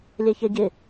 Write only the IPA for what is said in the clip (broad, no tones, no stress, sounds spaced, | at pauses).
lʲ ɛ ç ɛ ɟ ɪ